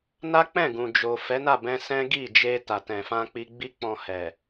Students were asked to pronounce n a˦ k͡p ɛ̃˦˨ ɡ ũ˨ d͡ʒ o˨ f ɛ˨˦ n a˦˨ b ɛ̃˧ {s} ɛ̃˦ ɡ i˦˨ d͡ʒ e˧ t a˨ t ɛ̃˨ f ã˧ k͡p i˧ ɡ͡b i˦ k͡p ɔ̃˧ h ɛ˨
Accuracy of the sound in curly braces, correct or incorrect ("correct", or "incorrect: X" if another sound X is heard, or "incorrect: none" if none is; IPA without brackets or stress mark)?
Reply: correct